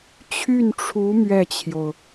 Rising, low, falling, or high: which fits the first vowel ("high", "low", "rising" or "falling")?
falling